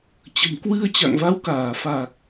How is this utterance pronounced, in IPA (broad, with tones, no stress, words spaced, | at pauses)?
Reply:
t͡ɕə̤˨˩mkwɨ˧ə̯t͡ɕa̰˧˨ŋ va˨˦wkaː˧˩fa˨˩k̚